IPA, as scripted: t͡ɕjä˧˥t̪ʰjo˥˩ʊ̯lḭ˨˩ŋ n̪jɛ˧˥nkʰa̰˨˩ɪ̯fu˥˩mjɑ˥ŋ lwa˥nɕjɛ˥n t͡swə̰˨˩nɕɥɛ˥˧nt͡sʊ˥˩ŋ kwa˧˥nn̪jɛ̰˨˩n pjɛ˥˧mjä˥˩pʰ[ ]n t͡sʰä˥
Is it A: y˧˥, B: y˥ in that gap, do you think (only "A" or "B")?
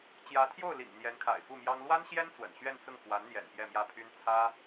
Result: B